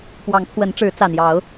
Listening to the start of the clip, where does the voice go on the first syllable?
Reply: rising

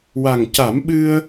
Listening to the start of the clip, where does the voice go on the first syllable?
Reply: low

